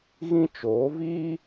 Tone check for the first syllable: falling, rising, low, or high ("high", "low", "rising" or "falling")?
high